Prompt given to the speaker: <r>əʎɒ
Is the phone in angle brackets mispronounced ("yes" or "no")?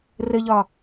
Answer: no